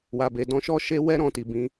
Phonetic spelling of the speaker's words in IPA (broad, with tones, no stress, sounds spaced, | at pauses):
w a˨ b e˨ d ɔ̃˧ ʃ ɔ˦ ʃ e˧ w ɛ˦ ɾ ɔ̃˦˨ t i˨ b ĩ˨˦